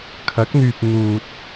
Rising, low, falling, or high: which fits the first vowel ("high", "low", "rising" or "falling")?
rising